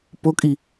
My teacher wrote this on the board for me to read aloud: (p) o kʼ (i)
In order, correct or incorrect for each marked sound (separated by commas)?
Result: correct, correct